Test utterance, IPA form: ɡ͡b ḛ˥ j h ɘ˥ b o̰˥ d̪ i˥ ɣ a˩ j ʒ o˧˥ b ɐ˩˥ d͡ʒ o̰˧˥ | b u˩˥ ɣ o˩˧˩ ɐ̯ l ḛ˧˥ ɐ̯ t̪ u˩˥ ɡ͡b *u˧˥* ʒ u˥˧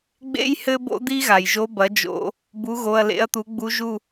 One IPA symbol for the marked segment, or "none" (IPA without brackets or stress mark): u˧˥